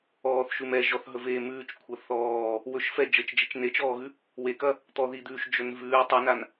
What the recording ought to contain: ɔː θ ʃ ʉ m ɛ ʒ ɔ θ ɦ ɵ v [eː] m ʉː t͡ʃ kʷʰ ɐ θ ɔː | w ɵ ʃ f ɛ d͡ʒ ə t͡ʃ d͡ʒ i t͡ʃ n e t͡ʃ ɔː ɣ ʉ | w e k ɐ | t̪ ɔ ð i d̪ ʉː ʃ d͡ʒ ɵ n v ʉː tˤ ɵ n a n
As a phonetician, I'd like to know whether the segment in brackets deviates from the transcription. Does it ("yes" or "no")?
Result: no